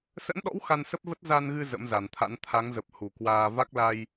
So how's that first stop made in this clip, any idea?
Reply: implosive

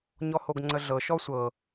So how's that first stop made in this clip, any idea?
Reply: plain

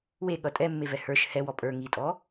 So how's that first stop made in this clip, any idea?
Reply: implosive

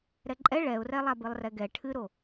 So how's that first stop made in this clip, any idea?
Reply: click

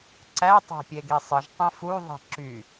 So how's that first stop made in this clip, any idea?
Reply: click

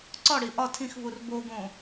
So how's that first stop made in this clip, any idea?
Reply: click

